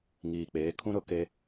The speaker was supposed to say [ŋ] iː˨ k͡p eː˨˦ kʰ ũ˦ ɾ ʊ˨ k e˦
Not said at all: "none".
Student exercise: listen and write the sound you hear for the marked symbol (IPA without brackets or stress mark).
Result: ŋ